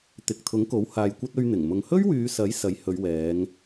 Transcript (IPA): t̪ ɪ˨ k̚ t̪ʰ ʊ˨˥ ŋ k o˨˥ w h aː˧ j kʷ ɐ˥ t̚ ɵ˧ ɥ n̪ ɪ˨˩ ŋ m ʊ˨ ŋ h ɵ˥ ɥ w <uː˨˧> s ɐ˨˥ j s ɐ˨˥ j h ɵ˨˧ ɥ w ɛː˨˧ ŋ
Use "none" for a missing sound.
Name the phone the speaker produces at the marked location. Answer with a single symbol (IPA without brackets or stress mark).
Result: yː˨˧